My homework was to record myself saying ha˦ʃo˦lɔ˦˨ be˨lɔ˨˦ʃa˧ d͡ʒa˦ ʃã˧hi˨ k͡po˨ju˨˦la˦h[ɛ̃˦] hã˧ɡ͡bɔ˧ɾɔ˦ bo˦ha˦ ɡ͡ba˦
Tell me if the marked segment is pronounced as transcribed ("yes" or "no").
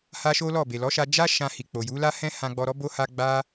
yes